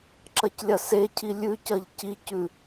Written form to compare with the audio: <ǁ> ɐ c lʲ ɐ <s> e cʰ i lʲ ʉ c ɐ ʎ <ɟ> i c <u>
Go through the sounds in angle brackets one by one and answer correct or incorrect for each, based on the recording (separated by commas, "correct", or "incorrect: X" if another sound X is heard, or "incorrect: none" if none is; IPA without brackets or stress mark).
correct, correct, incorrect: c, incorrect: ʉ